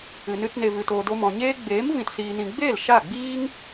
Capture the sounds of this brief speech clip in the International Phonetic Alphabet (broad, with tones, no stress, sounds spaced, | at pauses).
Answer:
ɨ˨ n ɨ˧ t n e˨ v ɨ˨ t oː˨ d o˧ m ɔ̃˨ ɲ eː˦ ɡ͡b eː˨˦ m v ĩ˨ t s iː˨ n ĩ˨ ɡ͡b eː˦˨ l ʃ a˦˨ ɡ͡b iː˦ ŋ